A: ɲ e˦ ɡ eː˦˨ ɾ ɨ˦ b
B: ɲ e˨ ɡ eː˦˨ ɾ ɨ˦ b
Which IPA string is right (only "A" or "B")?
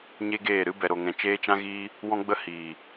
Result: A